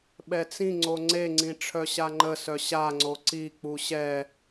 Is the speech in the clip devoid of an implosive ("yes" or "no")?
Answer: no